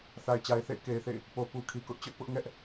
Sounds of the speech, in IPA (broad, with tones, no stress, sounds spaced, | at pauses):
θ a˨ ɪ̯ t͡ɕ a˨ ɪ̯ θ ḛ˦˨ ɪ̯ k e˨ ɪ̯ θ ḛ˦˨ ɪ̯ | p o˨ p u˨ kʰ i˨ k ʊ˦ ʔ t͡ɕ ʊ˦ ʔ p ʊ˦ ʔ ŋ ɛ˦ ʔ